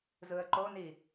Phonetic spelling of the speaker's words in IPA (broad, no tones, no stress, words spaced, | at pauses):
zɯə̯ǃoni